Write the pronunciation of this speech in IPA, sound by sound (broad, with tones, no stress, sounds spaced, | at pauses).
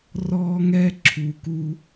r ɔː˦ ŋ ɛ˦ ǁʰ u˨ k u˧